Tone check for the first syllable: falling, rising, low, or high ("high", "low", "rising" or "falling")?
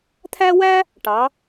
high